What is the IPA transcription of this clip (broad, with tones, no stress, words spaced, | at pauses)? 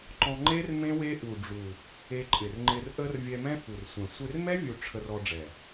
ǃɔ̃˧ ŋ͡ǃe˦r mẽ˦we˦ ʔu˨ɖ͡ʐu˨ | e˧ǃʼɪ˨rŋ͡ǃɪ˧r ʔə˧r vʲɛ˧mɛ̃˦fu˨rsʷɛ̃˨ sʷe˧rmɛ˦vʲu˨ ʈ͡ʂʰə˧rɔ˧ɖ͡ʐɛ˨